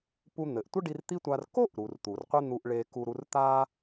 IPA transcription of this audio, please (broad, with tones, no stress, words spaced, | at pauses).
pu˧n̪ɘ˩ʔtʷɘ˥ɖi˧r t̪i˥tʷa˧r ko˥ʔɾu˩r t̪u˩rqʷe˥n̪u˧ʔ ɭe˧ku˧ɾu˧r t̪a˥